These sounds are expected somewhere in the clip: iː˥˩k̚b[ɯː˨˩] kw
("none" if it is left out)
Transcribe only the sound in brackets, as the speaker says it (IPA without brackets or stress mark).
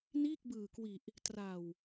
ɯː˨˩